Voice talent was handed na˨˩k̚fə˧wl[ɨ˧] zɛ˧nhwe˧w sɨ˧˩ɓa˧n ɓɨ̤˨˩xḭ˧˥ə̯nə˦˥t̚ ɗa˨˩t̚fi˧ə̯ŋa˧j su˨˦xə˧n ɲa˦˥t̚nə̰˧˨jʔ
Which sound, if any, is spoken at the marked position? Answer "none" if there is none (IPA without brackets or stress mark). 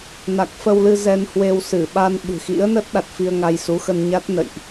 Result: ɨ˧